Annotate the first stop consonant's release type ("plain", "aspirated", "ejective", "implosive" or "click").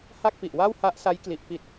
plain